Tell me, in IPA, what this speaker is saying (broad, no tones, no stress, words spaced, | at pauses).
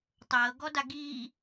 tˤɤːɡɔda ɡiː